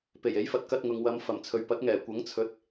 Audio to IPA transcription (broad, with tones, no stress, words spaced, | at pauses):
pe˨˩je˨˥jfɐ˧t̚ kɐ˧t̚ ŋʊ˨ŋwɐ˨˧mfɐ˨˩m t͡sʰɵ˨ɥpɐ˨˥t̚ŋɛː˨˩ kʷɐ˨˥ŋt͡sʰɵ˨˥t̚